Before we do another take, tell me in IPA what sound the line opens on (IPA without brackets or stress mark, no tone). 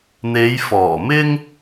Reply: n̪